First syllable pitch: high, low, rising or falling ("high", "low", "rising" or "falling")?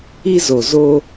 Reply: high